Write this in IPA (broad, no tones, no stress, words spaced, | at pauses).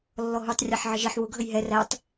lːɔɦutˤ rʲɑħʕəʒiħ wʊ ɡʱəjɦɛ rætˤ